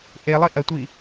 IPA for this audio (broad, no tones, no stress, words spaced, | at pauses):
ʔelˠi ʔɐtʷi